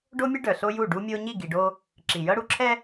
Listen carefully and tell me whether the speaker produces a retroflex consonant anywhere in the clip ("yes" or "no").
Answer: yes